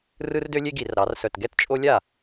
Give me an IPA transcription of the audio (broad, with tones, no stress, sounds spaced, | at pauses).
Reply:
r ɯ˦ r d ø˦ lʲ e˦ ɡ i˧˩˧ r ɾ ɑ˩˧ r s œ˨˩ t ɡ ɛ˥˩ t t͡ʃʼ o˦ lʲ a˥˩